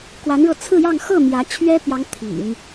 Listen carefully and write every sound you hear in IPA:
kwa˧˥nɻɤ˧ t͡sʰɹ̩˥˧jɑ˥˧ŋ xɤ˥˩ mjä˧˥ t͡ɕʰɥɛ˥pjɑ˧˥ŋ t̪ʰḭ˨˩˦ŋ

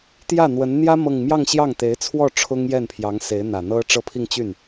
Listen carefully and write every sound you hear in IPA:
t̪jä˥˩n̪wə˧˥n n̪jä˥ mɤ˥˧ŋ mjɑ˥˧ŋɕjɑ˥˩ŋt̪e˧˥ɪ̯t͡sʰwɔ˥˩ ʈ͡ʂʰʊ˥ŋjɛ˥˩npʰjɑ˧˥ŋ se˧˥ɪ̯n̪ä˨˩n̪ɤ˥ ʈ͡ʂɤ˥˧pʰi˥˧ŋt͡ɕy˥˩n

